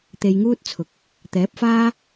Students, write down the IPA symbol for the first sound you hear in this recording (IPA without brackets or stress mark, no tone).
t̪